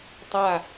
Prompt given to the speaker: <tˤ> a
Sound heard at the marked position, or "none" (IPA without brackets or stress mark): tˤ